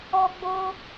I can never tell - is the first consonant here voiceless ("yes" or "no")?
no